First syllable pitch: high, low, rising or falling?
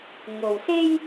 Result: low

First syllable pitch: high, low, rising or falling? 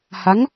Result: rising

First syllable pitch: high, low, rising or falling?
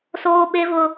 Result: high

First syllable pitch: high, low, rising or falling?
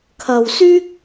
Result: low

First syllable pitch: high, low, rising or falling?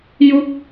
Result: falling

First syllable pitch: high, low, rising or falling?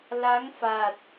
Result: rising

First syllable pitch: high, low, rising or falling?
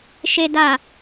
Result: low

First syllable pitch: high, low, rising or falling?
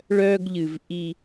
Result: high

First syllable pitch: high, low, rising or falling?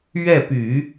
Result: falling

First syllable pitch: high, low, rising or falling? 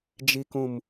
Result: low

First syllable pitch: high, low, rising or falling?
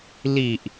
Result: low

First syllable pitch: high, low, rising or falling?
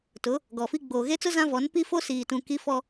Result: rising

